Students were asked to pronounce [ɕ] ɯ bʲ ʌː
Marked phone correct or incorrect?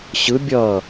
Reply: correct